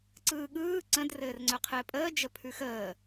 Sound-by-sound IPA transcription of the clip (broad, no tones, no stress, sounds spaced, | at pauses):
ǀ ɯː ɠ ɯː ǀ ə̃ d r ɘː r ŋ͡ǀ œ qʰ ɘː pʼ əː d͡ʒ ə pʰ ʉ x əː